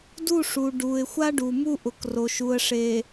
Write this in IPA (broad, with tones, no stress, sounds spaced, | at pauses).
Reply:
d u˦˨ ʂ u˨ ɖ u˨ ɪ̯ xʷ a˦ ɖ u˨ m u˦ ʔ ʊ˨ k r o˨ ʃ u˨ ə̯ ʂ e˨